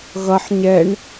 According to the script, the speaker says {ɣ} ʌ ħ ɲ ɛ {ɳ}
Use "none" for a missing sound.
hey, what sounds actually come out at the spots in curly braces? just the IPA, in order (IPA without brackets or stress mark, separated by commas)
ɣ, ɳ